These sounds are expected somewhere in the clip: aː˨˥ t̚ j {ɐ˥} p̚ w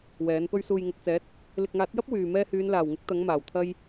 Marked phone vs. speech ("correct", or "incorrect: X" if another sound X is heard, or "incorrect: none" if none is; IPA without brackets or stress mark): correct